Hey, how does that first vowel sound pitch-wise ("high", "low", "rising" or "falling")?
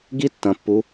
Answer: high